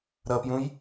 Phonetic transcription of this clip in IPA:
ɾʌpjũj

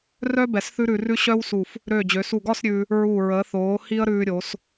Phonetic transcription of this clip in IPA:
rœ˥ bɛ˧˩sθʉ˥ɾʉ˧rʉ˥ ɕœ˥wsu˧˩f | ɾøː˧˩d͡ʑø˩˧su˧˩ɡɒ˥˧s ɾʲʉː˧ | ɹu˧˩ ɹə˩˧θoː˩˧hi˧ə̯ ɾʉː˧ɾʲo˩˧s

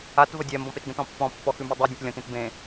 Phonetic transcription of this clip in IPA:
at vədʲɛ mbɔ̃petɡə̃t ɔ̃pːɔ̃ pːɔxʉmʉdˤe dʲə̃tlʲɔ̃t ẽtbẽ

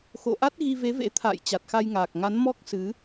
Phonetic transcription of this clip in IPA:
xo̰˧˨ʔa˦˥t̚ɣi˧ ve˨˦vḛ˧˥ t̪ʰa̰ː˧˨j t͡ɕa˨˩t̚xa˧jŋaː˨˩k̚ŋa˨˦n mɔ˦˥k̚ sɨ˨˦

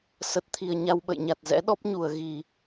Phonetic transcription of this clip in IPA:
sə˨˩t̚t̪ʰi˨˩ə̯ ɲa˧wɓə̰˧˨jɲa˨˩t̚ zɛ̰˧˥ɗɔ˦˥p̚ɲu˧˩ə̯ ɣi˧˩˨

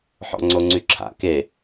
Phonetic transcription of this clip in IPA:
ħɔ̰ŋ͡ǀoŋ͡ǀyǁʰa̰ ke

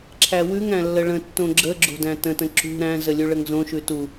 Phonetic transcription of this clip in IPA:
ǁʰæwʉŋæ̃ lːəɭə̃tːõ ɡ͡ǁə ɡ͡ǁo̤dæ̃tə̃tə̃ ǁṳ ɾæ̃zə lʲʉɭəŋzõʃʉ tu

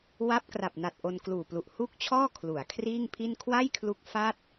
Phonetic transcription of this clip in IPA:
wa˦˥p̚kra˨˩p̚na˨˩t̚ ʔo˧nkluː˨˩plu˨˩ʔ hu˥˩k̚t͡ɕʰɔː˥˩ kʰlu˩˦a̯kʰriː˥˩ŋpʰi˥˩n kʰwa˥˩jkʰlu˦˥k̚ fa˥˩t̚

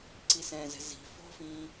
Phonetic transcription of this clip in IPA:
ǀisɛ̃ːzɛ̤ zi̤ fɔ̤fĩː

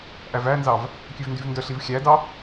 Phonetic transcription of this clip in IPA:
ʔævænzɑv | kʲøvndyvndœɬiv xʲædɑ

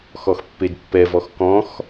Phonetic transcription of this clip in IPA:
xɔxpːedpːɛvɔx kɔ̃x

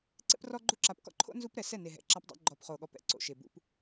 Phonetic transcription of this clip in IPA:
ǀɛ̰˦prɔ˦ɡ͡ǃu˦ ǁa˨pkɔ̰˦ǃʰo̰˦ nzu˦pɾɛ˨ sɛ˦˨ne˨ɦɛ̰˨ ǁa˦pdˤɛ̰˦ ɡ͡ǃɔ˨pχo˨ɠɔ˨pɛ̰˦ ǀo̰˨ʃe˨ bṵ˦p

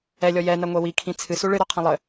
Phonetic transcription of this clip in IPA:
ɛlʲɔ jɛnɐŋʷɛ wikʰĩ t͡sʰɨsu ɭɨɾɔqʰɐ̃ lˠɘ

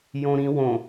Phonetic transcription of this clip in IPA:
jõɾĩ wõ

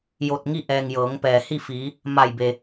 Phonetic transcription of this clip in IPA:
jo˧˩t̚ŋi˥˨ʔɛː˩ŋ jɤː˩˧ŋpɛː˩hi˥˨fiː˩˧ | ma˧˩jbe˩

